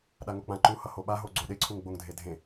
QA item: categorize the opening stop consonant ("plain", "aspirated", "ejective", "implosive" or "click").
implosive